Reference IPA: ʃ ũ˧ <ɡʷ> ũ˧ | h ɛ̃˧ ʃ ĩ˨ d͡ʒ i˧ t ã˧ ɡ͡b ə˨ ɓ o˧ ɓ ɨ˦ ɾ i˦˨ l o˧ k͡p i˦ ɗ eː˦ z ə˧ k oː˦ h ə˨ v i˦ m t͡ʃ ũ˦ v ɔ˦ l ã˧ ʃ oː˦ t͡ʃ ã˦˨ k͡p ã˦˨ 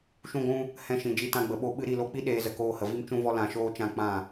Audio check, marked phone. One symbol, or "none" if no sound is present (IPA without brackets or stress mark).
ɡʷ